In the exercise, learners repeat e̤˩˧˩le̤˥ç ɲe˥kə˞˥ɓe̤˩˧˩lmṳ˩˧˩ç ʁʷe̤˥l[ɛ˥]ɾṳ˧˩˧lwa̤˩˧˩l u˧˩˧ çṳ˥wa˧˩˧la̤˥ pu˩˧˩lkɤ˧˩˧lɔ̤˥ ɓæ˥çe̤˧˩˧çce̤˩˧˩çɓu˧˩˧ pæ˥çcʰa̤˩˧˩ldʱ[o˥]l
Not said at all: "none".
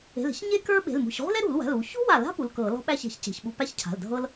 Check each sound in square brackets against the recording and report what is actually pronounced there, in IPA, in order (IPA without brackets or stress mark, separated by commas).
ɛ˥, ɤ˥